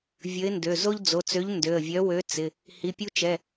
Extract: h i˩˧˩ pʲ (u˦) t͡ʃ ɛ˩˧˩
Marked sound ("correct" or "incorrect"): correct